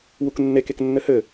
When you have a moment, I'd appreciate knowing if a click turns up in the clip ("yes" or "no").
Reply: no